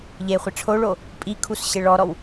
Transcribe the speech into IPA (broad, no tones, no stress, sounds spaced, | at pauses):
ʎ e χʷ ɪ ʈ͡ʂʰ o ɭ o | pʼ i kʰ u s ɕ ɪ ɭ ɔ ɾ ɔ w